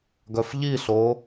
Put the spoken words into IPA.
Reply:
ɡ œ f ʎ i ɬ o

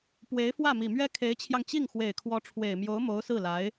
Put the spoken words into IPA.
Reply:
p w e˧˥ ɪ̯ f w ä˥˩ m i˨˩ m ɥ ɛ˥ kʰ e˧˥ ɪ̯ t͡ɕʰ j ɑ˧ ŋ t͡ɕ i˥˩ ŋ x w e˨˩ ɪ̯ kʰ w ɔ˧˥ ʈ͡ʂʰ w e˨˩ ɪ̯ m j o˧˥ ʊ̯ m o˧˥ ʊ̯ s ɹ̩˥˩ l a˧˥ ɪ̯

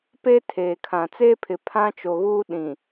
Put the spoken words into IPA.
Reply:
p e˦ tʰ eː˨ kʰ ã˨ t͡s eː˦ pʰ ɪ˨ pʰ ã˦ t͡ʃ o˨ ɣ uː˦ ɗ ĩ˨

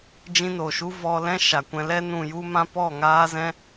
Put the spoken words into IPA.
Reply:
d͡ʒ ĩ˧ n o˨ ʃ u˦ v ɔ˧ l ɛ̃˦ ʃ a˨ kʷ ɛ̃˧ l ɛ˧ n ũ˨ j u˧ m ã˧ p ɔ˦˨ ŋ aː˦ z ɛ̃˦

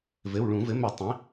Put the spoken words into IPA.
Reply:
v ɘ˩˧˩ w ɭ ũ˧˩˧ v ɘ˩˥ m ɘ˧˩˧ tˤ ĩ˩˥

